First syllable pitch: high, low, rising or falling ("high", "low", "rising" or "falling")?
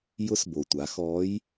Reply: rising